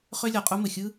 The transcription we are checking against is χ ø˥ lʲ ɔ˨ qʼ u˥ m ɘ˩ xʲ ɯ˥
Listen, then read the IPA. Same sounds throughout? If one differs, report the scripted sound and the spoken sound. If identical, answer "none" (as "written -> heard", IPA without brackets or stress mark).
none